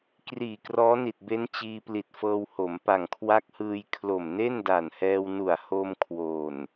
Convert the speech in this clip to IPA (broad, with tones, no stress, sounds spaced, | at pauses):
k r iː˨˩ k r ɔː˦˥ n i˨˩ t̚ b e˦˥ n t͡ɕ iː˧ p l i˨˩ t̚ f ɤː˧ w h o˩˦ m p a˨˩ ŋ kʰ w a˦˥ k̚ h ɯː˧ j kʰ l o˨˩ m n e˥˩ n d a˨˩ n h ɛː˧ w n u˨˩ a̯ h o˧ m kʰ w o˨˩ n